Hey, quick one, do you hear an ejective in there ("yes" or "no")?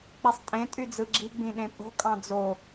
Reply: yes